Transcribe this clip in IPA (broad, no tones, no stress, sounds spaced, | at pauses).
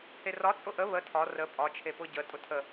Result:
h e r ɒ t͡sʼ ʊ ʔ ə β ə tʰ ɒ r ə pʼ ɒ t͡ʃʰ e p ʊ ɟ ə tʼ ʊ tʰ ə